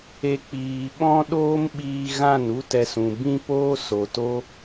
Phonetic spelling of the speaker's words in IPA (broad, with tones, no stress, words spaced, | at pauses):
e˧ k͡piː˧ ɓɔ̃˦ ɗoː˦mɓiː˧ɣã˦˨n u˦tɛ˧sũ˨ bĩ˦poː˦ so˨to˦